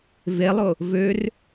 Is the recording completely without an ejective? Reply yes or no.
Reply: yes